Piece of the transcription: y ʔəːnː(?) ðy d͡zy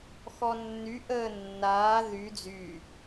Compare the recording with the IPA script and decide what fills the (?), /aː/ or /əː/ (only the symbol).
aː